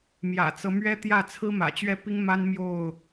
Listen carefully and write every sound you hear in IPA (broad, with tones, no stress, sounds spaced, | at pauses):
m j ä̰˨˩ t͡s ɤ˦ m ɥ ɛ˦ t̪ j ä˥˨ t͡sʰ ɹ̩˦ m ä̰˨˩ t͡ɕ ɥ ɛ˥˨ p i˦ ŋ m a˦ n m j o˥˨ ʊ̯